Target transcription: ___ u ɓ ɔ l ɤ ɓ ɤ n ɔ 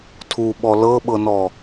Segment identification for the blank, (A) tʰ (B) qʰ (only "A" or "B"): A